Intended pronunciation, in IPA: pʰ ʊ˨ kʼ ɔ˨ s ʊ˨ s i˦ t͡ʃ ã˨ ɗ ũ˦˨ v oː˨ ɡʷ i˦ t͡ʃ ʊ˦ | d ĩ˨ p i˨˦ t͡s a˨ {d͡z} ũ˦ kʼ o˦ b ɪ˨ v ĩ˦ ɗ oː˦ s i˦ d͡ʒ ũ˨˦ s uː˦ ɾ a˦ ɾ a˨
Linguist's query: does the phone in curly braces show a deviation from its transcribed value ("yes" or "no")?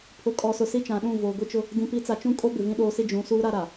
yes